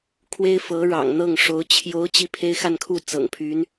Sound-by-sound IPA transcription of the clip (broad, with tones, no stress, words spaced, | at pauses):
kʰwe˥ɪ̯fɤ˧˥ɻɑ̰˨˩ŋ n̪ɤ˥˩ŋʂo˧˥ʊ̯ t͡ɕʰjo˧˥ʊ̯ t͡ɕi˥˩pʰe˥ɪ̯xa˥˧nkʰu˥˩ t͡sɤ̰˨˩ŋpʰy˧˥n